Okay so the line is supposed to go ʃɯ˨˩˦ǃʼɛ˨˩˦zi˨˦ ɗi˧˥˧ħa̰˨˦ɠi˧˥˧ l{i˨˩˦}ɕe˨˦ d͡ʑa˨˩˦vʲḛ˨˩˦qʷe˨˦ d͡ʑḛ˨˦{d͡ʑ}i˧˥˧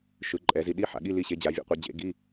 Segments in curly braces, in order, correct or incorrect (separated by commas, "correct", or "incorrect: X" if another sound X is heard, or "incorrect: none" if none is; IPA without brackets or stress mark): incorrect: i˦˨, incorrect: ɡ